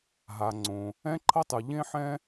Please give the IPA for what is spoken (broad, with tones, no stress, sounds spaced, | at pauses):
ɦ a˩ ŋ͡ǀ õ˩ | ɛ̃˥ ǃʰ ʌ˥ tˤ ɯ˩ ʎ ẽ˥ ħ ɛ̃˥